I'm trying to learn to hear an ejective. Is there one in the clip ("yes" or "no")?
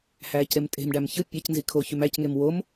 yes